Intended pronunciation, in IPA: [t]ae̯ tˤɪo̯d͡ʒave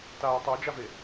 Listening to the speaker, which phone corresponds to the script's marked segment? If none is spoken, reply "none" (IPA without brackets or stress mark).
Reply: t